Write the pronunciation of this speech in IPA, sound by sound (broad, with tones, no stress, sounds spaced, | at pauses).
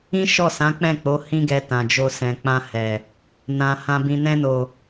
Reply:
ĩ˦ ʃ ɔ˦˨ s ã˨˦ k͡p ɛ̃˦˨ k͡p o˨˦ h ĩ˦ ɡ ɛ˧ t ã˨ d͡ʒ o˧ s ɛ̃˨ k͡p ã˧ h ɛ˨ | n ã˨ h ã˧ b ĩ˧ n ɛ̃˧ n o˨